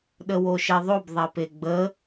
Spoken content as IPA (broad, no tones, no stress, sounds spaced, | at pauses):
ɗ ə w o ʃ e ðˤ o b ðˤ ɛ p e ɡ͡b ə